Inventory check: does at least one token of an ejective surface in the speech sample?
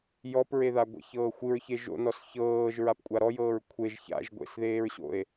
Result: yes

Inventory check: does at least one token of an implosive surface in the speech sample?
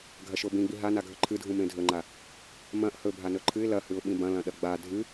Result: yes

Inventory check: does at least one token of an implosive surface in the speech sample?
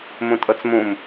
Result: no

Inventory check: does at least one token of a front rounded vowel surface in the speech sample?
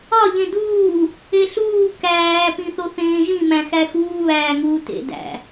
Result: no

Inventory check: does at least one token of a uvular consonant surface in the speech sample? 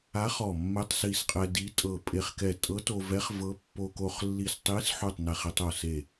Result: yes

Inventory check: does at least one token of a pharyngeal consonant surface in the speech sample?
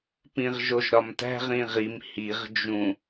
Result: no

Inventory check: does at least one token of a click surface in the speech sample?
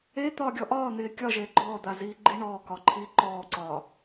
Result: yes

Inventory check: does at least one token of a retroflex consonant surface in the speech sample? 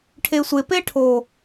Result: yes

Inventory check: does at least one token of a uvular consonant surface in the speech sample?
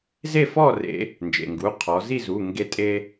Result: yes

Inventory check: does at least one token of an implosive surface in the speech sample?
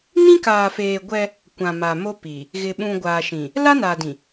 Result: yes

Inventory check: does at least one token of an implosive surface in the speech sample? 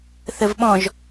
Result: yes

